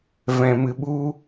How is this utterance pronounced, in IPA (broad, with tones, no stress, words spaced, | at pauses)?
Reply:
vɛ̃˧mɨ˧ɓu˦